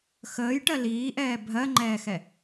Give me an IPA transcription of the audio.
x əː j ʈ ɜ l iː ʔ ɛː bʱ ɜ ŋ͡ǃ ɛː x ɛ

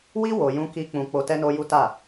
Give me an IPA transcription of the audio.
w i˦ w o˧ j ũ˦ k i˦ k͡p ũ˧ k͡p o˧ t ɛ˦ n o˦ j u˦ t a˦˨

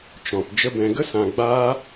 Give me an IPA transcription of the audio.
t͡ʃ ɔ̃˨ p d͡ʒ ə˧ b ɛ̃˨ ɡ ə˦ s ã˨ ɡ͡b aː˦

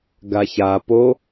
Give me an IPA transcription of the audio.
ɡ a ç a p o

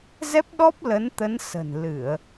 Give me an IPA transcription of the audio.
z ɛ˦˥ p̚ ɗ ɔ˦˥ p̚ l ə˨˦ n t̪ ə˨˦ n s ə̤˨˩ n l ɨ˧˩˨ ə̯

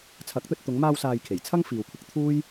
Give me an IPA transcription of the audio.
t͡sʰ ɐ˨˥ k̚ t̪ ɵ˧ t̚ t̪ ʊ˨˧ ŋ m aː˧ w s aː˨ j kʰ e˨˩ j t͡sʰ ɐ˥ ŋ f iː˨ w kʷʰ ɪ˧ k̚ t̪ʰ uː˥ j

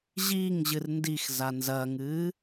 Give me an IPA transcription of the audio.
ʑ iː ŋ ʑ ɨ r n d i x z a n z ɐː ŋ ɨː

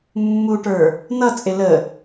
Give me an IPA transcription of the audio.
mː u ʈ ə˞ | n ʌ t͡sʼ ɪ l ə

